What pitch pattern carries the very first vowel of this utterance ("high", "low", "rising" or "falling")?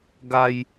high